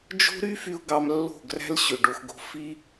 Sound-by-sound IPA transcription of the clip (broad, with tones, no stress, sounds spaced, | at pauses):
d͡ʒ o̤˦ ɾ y˦ f y˧ ʊ̯ ɡ ɑ˧ m lː o̤˦˨ ɡ r æ̤˦ l ɕ ø˨ ɖ o˧ x ɡ o̤˦ f i˦